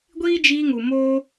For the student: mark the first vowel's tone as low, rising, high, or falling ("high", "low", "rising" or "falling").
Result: high